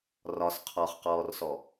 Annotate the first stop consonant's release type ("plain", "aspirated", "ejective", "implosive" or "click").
aspirated